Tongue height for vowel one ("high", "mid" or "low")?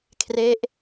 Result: mid